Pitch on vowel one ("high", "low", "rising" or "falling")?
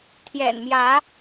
low